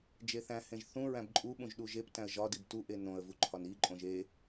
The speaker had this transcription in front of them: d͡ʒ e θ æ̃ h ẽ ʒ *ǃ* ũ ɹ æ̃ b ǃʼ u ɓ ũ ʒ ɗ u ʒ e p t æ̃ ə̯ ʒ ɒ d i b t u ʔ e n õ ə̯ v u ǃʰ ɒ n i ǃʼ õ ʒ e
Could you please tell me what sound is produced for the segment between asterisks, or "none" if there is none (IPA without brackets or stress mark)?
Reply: θ